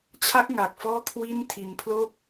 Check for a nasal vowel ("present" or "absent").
absent